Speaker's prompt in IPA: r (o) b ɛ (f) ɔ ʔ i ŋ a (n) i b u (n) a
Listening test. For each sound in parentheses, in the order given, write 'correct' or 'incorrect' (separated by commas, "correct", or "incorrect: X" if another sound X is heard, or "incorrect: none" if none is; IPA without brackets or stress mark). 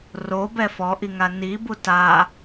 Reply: correct, correct, correct, incorrect: t